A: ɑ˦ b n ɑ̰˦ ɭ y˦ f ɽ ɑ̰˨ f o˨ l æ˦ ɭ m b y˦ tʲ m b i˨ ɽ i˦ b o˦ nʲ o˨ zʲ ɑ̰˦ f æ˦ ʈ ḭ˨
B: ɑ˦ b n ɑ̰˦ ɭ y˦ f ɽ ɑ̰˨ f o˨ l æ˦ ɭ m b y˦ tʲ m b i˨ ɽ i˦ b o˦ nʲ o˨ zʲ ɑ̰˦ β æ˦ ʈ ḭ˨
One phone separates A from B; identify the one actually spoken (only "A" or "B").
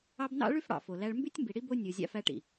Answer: A